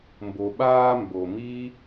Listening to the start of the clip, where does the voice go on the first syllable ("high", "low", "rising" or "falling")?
low